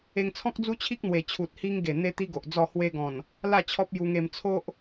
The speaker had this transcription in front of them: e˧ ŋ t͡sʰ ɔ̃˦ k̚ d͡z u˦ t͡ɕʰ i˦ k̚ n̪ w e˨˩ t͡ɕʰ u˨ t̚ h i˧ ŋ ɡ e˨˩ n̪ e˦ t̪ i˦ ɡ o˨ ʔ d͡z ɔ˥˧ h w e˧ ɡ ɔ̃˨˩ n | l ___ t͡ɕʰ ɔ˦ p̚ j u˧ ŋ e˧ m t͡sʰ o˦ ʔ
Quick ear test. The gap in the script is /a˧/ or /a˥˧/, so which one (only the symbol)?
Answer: a˥˧